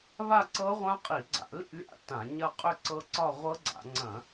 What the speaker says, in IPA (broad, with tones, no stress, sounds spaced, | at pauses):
β a˥˧ ǀ ɤ˦˥ ʁʷ ã˦˥ qʼ i˧˩˧ ɡ͡ǀ a̰˧˩˧ l ḭ˥˧ lʲ a̰˥˧ t ã˧˩˧ ɲ ɐ˥˧ qʼ ʏ˥˧ ǀ ɤ˦˥ ǀ ɒ˥˧ ʁʷ ɤ˦˥ ɡ͡ǀ a̰˧˩˧ ŋ͡ǀ ɐ̃˧˩˧